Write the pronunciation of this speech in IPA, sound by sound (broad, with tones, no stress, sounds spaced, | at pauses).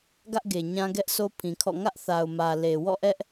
ɡ ä˦ ʔ ɡ e˨ ɲ ã˦ ɡ ɛ˦ ʔ s o˦ pʰ ĩ˨ kʰ ɔ̰˦˨ ŋ ä˦ ʔ θ a˨ ʊ̯ m ä˨ l e˨ w ɔ̰˦˨ ʔ ɛ˦ ʔ